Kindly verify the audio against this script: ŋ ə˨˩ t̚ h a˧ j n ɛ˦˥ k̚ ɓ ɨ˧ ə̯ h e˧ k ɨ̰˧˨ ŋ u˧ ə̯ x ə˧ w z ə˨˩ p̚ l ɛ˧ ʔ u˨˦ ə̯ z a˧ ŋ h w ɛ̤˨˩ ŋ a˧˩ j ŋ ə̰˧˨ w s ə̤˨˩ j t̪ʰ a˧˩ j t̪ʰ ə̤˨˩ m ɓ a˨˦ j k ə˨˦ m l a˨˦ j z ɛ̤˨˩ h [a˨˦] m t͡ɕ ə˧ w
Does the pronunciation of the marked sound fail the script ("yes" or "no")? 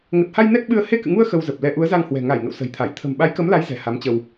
no